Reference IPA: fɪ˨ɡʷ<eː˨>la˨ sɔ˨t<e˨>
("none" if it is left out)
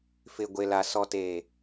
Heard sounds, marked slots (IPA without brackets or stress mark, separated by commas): e˨, e˨